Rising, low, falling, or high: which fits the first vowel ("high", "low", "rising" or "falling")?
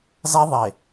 high